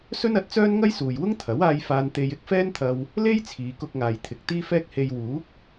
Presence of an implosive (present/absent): absent